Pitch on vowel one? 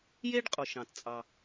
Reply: high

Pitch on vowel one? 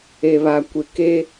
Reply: low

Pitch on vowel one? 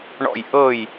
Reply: falling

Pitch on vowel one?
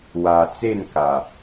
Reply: low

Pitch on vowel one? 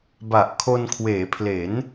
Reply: low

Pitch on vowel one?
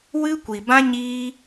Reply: high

